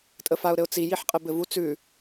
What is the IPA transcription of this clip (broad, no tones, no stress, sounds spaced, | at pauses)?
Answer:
tʼ ə f a ʊ̯ ɾ ɘ ʊ̯ t͡s i j i ħ qʼ ɘ b ɘ v u t͡s ʉ